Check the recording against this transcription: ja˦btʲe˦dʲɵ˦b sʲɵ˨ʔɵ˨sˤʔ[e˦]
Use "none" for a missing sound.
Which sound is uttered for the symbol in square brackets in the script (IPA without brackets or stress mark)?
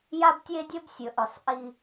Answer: i˦